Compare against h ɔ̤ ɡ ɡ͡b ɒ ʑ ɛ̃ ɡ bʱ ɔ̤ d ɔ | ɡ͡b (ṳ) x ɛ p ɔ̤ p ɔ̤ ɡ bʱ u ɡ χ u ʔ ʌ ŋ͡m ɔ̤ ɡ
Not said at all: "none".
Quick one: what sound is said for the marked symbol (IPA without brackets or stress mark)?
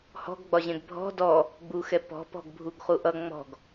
u